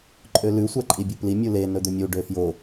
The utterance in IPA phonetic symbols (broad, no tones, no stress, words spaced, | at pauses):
ǃʼølʉ sʷæǃʼibʲupli mʲule nɵd̪ɵmʲu ɖøfjo